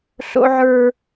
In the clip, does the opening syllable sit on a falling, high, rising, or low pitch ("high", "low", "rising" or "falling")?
high